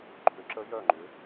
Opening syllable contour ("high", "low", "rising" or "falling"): rising